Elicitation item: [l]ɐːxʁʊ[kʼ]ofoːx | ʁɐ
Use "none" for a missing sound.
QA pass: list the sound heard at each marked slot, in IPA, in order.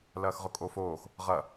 l, kʼ

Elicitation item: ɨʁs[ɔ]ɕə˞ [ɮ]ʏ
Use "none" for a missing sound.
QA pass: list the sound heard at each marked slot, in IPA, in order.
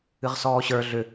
ɔː, ɮ

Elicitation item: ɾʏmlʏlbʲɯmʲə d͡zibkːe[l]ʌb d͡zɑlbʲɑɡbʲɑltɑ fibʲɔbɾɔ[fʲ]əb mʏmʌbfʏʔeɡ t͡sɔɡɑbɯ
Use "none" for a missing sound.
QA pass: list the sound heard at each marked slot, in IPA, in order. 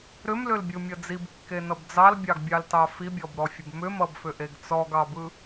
n, fʲ

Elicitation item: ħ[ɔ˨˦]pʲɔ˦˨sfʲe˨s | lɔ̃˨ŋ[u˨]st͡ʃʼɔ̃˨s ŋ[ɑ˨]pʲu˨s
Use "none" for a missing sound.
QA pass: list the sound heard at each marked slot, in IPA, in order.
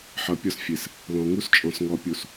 ʌ˨˦, u˦, ɔ˨

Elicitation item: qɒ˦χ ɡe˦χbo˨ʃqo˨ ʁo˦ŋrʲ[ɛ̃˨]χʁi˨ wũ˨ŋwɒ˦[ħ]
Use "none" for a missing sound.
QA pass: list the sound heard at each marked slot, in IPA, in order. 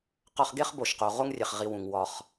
ɛ˨, χ

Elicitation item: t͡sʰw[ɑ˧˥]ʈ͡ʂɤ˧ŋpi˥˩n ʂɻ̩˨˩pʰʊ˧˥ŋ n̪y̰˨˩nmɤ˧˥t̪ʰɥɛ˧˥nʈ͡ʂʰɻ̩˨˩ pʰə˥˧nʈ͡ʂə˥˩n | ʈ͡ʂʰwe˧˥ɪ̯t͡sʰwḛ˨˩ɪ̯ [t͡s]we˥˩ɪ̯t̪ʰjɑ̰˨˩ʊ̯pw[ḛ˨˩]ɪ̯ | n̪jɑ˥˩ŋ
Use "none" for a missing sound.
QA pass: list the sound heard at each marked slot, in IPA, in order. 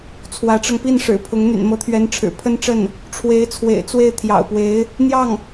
ä˧˥, t͡s, e˧˥

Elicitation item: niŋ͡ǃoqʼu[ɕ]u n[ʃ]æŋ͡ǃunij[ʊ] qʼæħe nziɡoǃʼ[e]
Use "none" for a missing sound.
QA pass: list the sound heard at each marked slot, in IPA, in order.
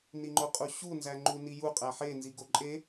ɕ, z, u, e

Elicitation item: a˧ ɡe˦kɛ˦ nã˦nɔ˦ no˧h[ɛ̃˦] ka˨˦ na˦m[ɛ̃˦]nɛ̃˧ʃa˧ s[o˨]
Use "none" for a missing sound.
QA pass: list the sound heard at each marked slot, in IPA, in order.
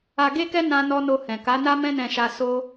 ɛ̃˨, ɛ̃˦, o˦

